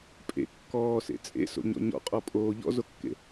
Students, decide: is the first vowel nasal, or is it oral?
oral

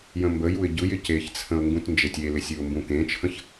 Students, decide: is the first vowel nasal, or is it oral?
nasal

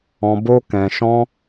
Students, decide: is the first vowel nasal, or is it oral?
nasal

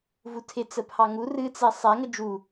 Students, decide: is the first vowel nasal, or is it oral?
oral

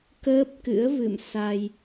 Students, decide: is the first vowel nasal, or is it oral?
oral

